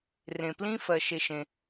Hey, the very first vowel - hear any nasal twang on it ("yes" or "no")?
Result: yes